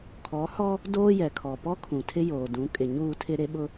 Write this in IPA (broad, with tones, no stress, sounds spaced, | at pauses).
kʰ ɔ˨˦ h ɔ˦ | d oː˦ j ɛ˨ kʰ ɔ˨ p ɔ˦ kʰ ũ˨ tʰ ɪ˦ j oː˨ d ũ˨˦ kʼ ɪ˨ ɲ uː˦˨ tʰ ɪ˦ ɾ e˦ ɓ ʊ˦